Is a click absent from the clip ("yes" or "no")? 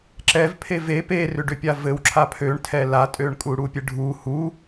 no